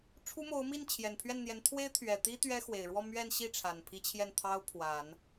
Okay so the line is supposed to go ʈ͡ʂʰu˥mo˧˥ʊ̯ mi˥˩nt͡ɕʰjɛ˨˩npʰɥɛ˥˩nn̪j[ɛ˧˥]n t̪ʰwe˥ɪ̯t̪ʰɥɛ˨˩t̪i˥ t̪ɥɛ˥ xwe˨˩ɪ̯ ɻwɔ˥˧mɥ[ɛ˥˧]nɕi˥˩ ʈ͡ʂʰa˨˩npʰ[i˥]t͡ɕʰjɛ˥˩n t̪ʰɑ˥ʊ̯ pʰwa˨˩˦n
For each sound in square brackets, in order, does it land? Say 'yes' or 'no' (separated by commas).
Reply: yes, yes, yes